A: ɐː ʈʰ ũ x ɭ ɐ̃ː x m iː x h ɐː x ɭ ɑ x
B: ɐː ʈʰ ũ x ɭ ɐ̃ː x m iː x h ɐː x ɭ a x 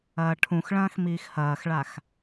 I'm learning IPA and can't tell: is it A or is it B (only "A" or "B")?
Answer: B